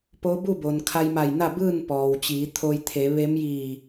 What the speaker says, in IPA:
p o˧˥ b u˥˨ b o˩ n kʰ a˧ j m a˧˩ j n a˥˨ b ɯː˥˨ n p ɔː˩ w t͡ɕ iː˩˧ t̪ʰ o˧ j t̪ʰ e˩˧ ʋ e˧˥ m j iː˧˩

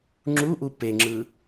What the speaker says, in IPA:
ŋ͡ǁ u ʔ u p e ŋ͡ǁ ɯ

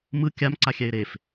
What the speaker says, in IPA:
m ɯ kʲ a m ǀ a xʲ ɛ ɪ̯ ɾ e f

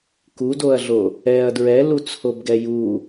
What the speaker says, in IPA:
k u d o ɐ̯ ɮ o | ɛ ɐ̯ d ɹ ɛ l u t͡sʰ o b ɡ ɛ j u

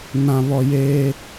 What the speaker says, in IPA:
n ã˨ β ɔ˨ j eː˦

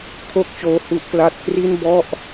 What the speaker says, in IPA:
kʰ o˥˩ k̚ t͡ɕ oː˦˥ h u˦˥ ʔ k l a˥˩ t̚ k r i˥˩ n b ɔ˥˩ ʔ

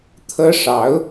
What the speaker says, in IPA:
t̪ʰ ɤ˥ ʂ ɑ˧˥ ʊ̯

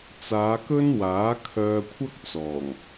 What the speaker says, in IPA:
t͡s aː˨˧ k ɵ˥ n w aː˨˥ kʰ œː˧ kʷʰ ɐ˥ k̚ t͡s ɔː˨˩ ŋ

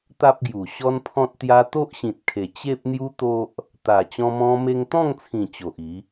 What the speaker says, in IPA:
t̪ a˦ p̚ ɡ j u˨˩ ɕ ɔ˦ n pʰ ɔ̃˦ t̚ t̪ j a˦ t̪ o˦ ʔ ɕ ĩ˨ t̚ kʰ e˨˩ t͡ɕ e˦ p̚ n̪ j u˦ t̪ o˦ ʔ | t̪ a˨˩ t͡ɕ ɔ̃˧ m ɔ̃˧ m e˧ ŋ t̪ ɔ̃˥˧ ŋ t͡sʰ ĩ˨˩ t͡ɕ o˨ ʔ i˨˦

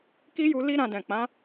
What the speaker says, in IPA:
k i˦ j u˧ l i˦ ɾ ã˧ d ɛ̃˨ k͡p ã˨˦

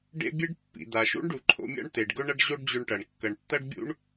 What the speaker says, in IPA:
ɖ ḛ˥ bʲ e˥ ɖ pː ḭ˩ d̪ a˩ ʃ ṵ˥ ɳ ɖ u˩ ǃʰ o̰˧ mʲ a̰˥ ɳ t̪ e˩ ɖ ɡ ɵ˥ ɳ ɐ˥ ɖ ʑ o˥ ɖ d͡ʑ ɵ˧ ɳ ʈ ɐ˩ ɳ kː ɐ˩ ɳ tː ɐ˥ ɖ bʲ ṵ˥ ɳ

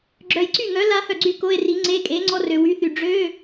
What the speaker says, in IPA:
ɡ͡ǁ œ˨ j ǀ y˥˩ ŋ œ˨˥ l a˥ h œ˥˩ ɡ͡ǀ y˥˩ k o˧˥˧ e̯ r i˨˥ ŋ͡ǀ e˧˥˧ kʼ e˨˥ ŋ͡ǀ ɔ˥ r ø˨ w y˨˥ θ y˨ ɖ͡ʐ ø˧˥˧

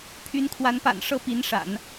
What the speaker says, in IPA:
pʰ y˧˥ n kʰ w a˧˥ n p a̰˨˩ n ʂ ɤ˥˩ p i˧˥ n ʂ a̰˨˩˦ n

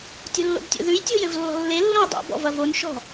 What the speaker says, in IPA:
tʲ o̤ lː o̰ b tʲ o̰ ð ʉ j tʲ o̤ j ɘ v lː ɔ̤ lː e lː õ j dˤ o̰ b ɔ̰ v ɐ v o n ʃ ɔ̤

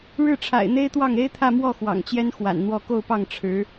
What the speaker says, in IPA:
ɻ ɻ̩˥˩ ʈ͡ʂʰ a̰˨˩ ɪ̯ n̪ e˥ ɪ̯ t̪ w ɑ˥˩ ŋ e˥ ɪ̯ t̪ʰ ä˥˧ m w ɔ˥˩ x w ɑ̰˨˩ ŋ t͡ɕ j ɛ˥ n x w a̰˨˩ n n̪ w ɔ˥˧ k o˥˧ ʊ̯ p ɑ˥˩ ŋ ʈ͡ʂʰ ɻ̩˧˥

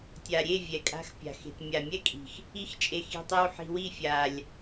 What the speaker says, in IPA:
tʲ a˨ ɾʲ e˦˨ vʲ ɛ˨ kʼ a̤˧ x pʲ a̤˨ x e̤˨ t mʲ a˨ mʲ ɛ˦ kʼ i̤˨ x | i˧ x t͡ʃʼ e˨ x i̤˧ tˤ e˦ w ħ i̤˧ w i˦˨ fʲ a˨ lʲ

